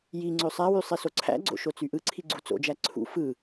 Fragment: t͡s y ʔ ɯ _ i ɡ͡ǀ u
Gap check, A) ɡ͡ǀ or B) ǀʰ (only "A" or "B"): B